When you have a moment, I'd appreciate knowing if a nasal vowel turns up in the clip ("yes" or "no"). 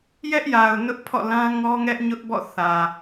yes